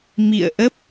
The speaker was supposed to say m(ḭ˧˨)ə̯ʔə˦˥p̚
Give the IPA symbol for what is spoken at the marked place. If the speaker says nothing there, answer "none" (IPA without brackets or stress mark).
ḭ˧˨